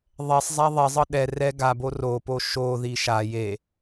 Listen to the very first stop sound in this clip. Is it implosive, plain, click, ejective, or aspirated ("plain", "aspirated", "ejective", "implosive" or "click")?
implosive